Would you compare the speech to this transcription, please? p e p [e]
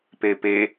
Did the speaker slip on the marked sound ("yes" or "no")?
no